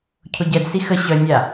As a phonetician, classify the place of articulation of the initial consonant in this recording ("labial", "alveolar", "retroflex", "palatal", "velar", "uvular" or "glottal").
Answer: palatal